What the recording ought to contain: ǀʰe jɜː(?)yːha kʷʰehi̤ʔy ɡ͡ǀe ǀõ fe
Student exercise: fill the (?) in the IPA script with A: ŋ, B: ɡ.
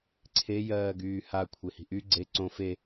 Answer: B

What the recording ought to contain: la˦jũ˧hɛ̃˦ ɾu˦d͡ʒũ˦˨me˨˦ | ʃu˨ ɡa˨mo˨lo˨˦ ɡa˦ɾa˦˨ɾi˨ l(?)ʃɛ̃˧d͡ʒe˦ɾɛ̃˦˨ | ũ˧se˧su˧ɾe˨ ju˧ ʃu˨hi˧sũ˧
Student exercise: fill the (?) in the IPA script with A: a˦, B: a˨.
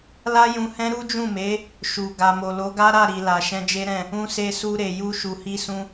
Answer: B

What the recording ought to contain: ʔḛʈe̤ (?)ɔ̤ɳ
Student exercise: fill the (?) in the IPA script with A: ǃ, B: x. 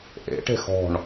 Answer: B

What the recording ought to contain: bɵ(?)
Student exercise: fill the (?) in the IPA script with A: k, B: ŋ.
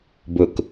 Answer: A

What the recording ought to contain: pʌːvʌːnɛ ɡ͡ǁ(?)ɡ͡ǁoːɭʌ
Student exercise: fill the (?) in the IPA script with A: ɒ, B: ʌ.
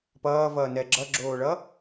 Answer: B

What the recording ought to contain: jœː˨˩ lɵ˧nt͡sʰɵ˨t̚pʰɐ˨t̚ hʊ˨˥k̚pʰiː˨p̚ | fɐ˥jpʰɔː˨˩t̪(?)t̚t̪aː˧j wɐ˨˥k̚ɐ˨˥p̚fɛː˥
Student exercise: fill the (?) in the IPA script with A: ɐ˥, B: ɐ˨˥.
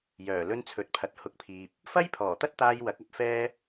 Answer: A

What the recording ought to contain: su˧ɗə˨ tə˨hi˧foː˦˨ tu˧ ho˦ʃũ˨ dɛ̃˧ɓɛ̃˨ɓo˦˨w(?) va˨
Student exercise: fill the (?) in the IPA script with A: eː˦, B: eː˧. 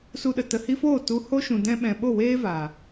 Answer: A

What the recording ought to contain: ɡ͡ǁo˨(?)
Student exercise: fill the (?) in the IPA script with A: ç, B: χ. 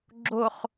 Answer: B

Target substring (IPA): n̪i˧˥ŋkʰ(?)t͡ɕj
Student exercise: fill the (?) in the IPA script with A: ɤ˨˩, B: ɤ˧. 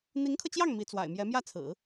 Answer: B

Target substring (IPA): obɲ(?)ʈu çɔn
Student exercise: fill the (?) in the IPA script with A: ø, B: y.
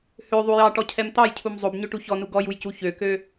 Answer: A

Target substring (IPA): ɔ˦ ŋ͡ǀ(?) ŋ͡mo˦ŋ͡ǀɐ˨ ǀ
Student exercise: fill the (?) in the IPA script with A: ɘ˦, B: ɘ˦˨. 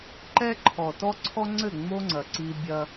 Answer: B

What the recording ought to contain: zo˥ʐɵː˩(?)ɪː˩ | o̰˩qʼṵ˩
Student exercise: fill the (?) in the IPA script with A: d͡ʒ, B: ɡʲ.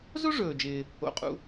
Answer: A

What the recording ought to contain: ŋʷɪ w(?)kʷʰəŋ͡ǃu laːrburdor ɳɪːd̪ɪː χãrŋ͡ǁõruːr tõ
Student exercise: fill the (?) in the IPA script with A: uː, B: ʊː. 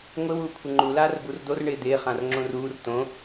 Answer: A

